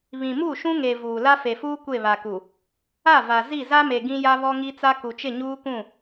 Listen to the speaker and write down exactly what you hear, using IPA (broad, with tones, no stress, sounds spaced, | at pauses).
β ĩ˨ m u˦˨ ʃ ũ˦ ŋ e˨ v uː˨ l a˦ f e˨ f uː˦ kʷ e˦˨ β a˨ k u˨ | a˦˨ v a˨ z i˦˨ z a˦ m e˨ ɡ ĩ˦ j a˦ β ɔ˦ ŋ i˦ t͡s a˦ k u˨ t͡ʃ ɪ˦˨ ɲ uː˦ k ũ˦˨